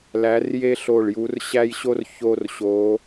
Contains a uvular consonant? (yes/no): no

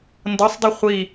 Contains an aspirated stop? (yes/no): no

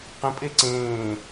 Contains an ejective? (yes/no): yes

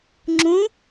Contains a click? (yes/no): yes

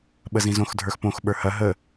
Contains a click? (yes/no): no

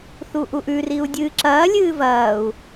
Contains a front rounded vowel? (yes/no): no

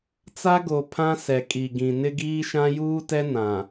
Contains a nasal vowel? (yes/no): yes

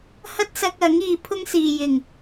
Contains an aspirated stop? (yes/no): yes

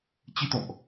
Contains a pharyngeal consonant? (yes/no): no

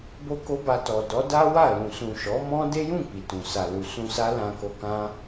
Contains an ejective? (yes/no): no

